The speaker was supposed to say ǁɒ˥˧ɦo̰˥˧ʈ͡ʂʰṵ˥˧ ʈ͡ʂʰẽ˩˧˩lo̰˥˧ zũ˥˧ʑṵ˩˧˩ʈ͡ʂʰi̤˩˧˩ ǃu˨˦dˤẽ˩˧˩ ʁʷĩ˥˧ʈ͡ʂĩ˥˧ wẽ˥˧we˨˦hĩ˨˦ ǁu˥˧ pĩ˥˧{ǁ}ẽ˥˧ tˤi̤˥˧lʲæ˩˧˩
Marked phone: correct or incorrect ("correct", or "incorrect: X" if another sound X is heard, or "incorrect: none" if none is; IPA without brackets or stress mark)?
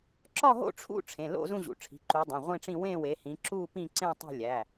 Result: incorrect: ǀ